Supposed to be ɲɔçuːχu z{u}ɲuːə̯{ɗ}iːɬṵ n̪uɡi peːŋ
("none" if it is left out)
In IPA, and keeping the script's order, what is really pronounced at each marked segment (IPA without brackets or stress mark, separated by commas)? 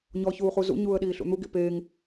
ṵ, ɗ